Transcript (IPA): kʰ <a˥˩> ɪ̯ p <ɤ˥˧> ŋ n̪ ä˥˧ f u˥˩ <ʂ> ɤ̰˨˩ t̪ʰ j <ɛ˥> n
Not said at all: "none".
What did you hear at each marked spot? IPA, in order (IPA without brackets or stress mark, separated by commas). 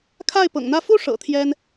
a˥˩, ɤ̰˨˩, ʂ, ɛ˥